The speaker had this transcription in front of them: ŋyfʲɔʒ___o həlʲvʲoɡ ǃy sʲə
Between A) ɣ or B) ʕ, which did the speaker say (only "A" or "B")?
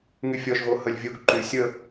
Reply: A